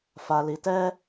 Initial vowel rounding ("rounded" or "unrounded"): unrounded